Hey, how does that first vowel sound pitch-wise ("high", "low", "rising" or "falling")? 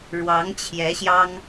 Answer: rising